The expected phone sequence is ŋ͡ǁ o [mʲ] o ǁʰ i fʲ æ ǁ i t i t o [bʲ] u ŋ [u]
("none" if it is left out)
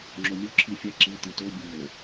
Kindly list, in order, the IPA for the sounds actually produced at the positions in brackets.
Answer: mʲ, bʲ, o

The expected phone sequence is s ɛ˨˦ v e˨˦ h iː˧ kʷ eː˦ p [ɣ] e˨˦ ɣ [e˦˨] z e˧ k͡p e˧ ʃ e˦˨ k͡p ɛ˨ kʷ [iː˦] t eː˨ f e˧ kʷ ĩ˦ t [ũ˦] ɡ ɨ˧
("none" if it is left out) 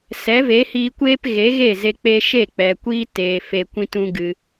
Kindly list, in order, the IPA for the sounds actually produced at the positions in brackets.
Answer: ɣ, e˦˨, iː˦, ũ˦

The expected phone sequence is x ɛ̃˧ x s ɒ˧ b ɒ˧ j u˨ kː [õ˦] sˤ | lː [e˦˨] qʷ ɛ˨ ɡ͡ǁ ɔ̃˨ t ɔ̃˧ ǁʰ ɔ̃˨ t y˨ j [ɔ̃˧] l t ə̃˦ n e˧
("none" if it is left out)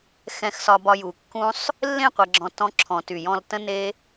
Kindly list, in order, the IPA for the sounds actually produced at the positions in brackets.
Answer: ũ˦, ẽ˦˨, ɔ̃˧

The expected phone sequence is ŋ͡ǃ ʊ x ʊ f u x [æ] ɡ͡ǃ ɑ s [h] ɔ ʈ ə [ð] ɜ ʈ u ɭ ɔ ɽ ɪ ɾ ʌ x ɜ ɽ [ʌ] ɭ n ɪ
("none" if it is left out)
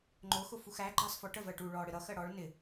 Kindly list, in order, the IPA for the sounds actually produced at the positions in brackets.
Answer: æ, f, v, ɔ

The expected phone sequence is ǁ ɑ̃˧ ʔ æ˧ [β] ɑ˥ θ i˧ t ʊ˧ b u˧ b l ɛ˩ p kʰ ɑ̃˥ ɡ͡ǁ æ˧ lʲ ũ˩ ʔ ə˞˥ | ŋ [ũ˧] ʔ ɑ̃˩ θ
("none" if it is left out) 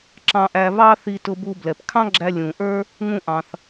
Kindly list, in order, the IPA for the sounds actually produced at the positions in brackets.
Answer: β, ũ˧

